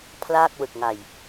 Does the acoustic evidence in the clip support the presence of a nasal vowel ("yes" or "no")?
no